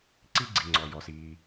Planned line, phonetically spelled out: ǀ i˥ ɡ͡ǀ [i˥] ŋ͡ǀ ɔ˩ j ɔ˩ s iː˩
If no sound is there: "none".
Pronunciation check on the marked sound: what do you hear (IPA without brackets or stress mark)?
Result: i˩